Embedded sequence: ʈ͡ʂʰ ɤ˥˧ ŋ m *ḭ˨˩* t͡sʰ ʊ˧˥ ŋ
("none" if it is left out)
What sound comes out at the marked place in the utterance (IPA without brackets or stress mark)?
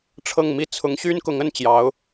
i˥˩